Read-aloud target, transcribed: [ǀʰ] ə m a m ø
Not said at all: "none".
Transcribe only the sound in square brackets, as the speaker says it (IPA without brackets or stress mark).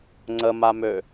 ŋ͡ǀ